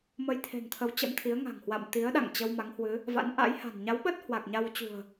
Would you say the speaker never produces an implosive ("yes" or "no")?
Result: no